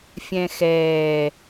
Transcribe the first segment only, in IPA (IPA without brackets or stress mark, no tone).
fʲ